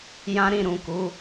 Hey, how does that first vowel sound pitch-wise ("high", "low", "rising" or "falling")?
high